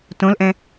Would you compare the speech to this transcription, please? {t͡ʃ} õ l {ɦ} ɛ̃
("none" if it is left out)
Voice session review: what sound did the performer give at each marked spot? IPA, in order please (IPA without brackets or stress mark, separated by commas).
t, ʔ